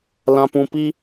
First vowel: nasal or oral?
nasal